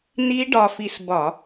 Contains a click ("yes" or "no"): no